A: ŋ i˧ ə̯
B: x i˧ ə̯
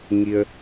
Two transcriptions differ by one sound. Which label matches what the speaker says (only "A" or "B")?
A